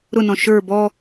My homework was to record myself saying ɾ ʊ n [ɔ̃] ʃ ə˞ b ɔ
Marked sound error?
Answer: no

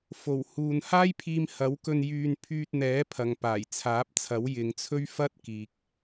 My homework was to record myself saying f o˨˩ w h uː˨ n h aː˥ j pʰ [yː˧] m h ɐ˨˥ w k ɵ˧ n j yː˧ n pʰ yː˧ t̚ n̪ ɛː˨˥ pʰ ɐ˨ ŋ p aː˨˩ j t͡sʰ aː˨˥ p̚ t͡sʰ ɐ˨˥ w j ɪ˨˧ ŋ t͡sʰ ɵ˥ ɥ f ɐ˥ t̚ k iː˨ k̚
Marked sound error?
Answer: yes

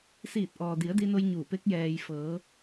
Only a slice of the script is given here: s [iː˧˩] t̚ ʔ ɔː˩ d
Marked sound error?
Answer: no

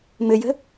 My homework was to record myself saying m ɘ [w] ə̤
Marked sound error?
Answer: yes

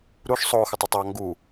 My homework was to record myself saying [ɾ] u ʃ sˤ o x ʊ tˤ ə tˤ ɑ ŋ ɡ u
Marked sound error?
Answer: no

